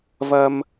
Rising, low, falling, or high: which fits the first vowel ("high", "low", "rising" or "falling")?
low